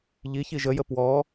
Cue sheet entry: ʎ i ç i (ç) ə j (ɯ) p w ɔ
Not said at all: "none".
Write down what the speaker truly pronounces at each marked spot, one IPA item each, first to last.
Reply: ʒ, ə

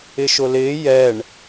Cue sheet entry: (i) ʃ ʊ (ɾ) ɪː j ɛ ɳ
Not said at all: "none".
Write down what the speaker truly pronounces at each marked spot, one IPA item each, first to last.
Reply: ɪ, l

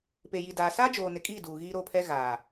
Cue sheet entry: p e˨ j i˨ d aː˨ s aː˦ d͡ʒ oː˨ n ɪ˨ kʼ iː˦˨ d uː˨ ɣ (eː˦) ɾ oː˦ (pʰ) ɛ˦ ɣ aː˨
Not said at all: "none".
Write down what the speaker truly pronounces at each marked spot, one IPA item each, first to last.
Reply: iː˦, pʰ

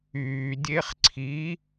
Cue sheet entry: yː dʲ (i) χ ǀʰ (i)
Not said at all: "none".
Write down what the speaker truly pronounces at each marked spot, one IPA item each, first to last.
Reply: e, i

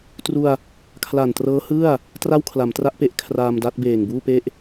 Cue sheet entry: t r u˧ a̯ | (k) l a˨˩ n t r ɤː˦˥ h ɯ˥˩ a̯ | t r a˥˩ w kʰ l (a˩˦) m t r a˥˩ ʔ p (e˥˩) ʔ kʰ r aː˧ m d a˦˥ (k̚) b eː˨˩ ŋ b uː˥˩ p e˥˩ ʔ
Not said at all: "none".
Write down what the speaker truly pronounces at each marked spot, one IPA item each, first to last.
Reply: kʰ, a˩˦, e˥˩, t̚

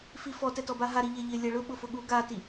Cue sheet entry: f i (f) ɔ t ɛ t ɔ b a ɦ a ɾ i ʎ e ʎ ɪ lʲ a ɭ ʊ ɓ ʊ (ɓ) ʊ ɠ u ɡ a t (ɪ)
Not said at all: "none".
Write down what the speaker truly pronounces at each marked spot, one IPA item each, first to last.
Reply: f, f, i

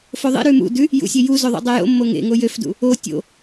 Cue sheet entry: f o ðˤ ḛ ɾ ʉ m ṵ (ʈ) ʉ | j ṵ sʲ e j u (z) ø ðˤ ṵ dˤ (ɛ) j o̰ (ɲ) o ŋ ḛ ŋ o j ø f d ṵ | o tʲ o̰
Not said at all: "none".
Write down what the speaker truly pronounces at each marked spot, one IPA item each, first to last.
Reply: d, z, e, mː

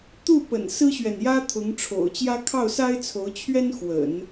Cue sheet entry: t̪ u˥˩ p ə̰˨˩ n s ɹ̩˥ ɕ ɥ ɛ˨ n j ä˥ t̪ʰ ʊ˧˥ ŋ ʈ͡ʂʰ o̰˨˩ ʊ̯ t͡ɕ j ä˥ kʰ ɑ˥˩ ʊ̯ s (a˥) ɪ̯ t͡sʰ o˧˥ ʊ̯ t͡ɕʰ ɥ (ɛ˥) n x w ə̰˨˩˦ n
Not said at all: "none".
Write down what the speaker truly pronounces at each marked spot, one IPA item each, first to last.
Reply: a˥, ɛ˥

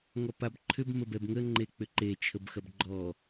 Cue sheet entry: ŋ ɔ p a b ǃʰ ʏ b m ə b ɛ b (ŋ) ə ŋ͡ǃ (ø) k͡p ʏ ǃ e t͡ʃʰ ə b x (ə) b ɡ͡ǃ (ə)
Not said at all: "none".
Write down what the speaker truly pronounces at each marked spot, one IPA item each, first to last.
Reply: ŋ, e, ɐ, ɔ

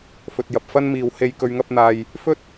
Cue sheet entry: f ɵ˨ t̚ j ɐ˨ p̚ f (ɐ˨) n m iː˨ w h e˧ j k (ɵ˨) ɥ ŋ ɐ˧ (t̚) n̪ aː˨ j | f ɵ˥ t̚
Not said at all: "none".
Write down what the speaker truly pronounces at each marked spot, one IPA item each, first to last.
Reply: ɐ˥, ɵ˨, p̚

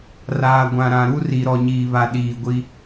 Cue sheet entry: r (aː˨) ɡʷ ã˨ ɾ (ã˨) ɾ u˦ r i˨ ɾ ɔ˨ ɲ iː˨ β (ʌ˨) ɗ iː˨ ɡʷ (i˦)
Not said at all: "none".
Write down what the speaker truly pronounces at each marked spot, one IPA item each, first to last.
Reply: aː˨, ã˨, a˨, i˦

